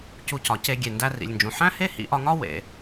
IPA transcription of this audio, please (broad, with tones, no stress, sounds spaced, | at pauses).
c u˧ c ɒ˩ c e˧ ɡʲ e˩ n d æ˧ r ḭ˩ lʲ n d͡ʒ ũ˩ ħ æ̃˥ h e˥ h ḭ˧ ʔ ɒ˧ ŋ ɒ˥ w ḛ˩